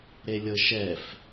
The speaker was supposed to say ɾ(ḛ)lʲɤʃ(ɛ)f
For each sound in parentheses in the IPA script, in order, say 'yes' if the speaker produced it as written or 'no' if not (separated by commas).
no, yes